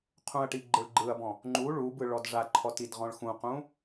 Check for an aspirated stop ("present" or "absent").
present